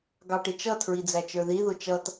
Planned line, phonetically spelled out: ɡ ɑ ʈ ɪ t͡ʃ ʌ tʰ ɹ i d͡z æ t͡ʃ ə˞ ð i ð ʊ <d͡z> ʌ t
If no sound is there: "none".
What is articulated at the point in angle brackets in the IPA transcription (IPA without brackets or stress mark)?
t͡ʃ